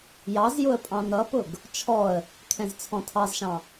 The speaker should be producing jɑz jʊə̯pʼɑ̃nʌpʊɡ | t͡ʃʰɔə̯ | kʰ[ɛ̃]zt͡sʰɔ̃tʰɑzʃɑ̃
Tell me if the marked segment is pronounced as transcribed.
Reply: yes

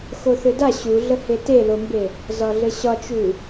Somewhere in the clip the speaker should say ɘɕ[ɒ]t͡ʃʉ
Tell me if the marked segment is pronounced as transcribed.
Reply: yes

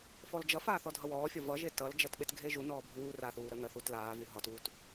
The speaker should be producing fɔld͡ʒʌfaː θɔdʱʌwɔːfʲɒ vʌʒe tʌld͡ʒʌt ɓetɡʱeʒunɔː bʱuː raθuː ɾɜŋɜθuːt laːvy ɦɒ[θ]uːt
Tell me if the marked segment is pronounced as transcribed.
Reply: no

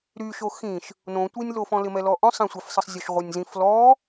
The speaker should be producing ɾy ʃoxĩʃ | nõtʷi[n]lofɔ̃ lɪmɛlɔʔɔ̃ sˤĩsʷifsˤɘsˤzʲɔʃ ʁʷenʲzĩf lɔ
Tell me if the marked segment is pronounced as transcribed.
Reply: no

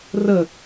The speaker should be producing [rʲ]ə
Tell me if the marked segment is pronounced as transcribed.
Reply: no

